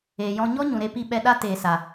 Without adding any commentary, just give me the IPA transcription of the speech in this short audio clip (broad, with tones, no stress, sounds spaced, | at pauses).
eː˨ j ɔ̃˧ ɲ ɔ˦ ɲ ũ˨ ɾ e˧ p i˧ ɓ ɛ˧ ɗ a˦ t eː˨ s a˨